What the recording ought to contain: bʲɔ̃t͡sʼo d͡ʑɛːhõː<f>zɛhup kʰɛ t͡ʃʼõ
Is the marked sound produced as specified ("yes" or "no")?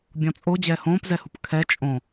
no